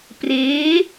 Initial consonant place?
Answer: labial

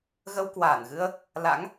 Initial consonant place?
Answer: velar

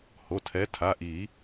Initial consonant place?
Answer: glottal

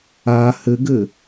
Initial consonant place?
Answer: glottal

